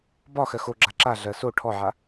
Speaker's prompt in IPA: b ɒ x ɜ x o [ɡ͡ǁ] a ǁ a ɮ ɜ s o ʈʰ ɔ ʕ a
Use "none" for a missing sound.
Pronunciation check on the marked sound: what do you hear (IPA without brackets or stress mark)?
ɡ͡ǁ